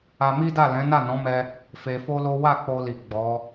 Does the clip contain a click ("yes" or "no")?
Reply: no